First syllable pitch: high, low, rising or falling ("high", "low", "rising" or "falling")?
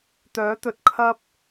rising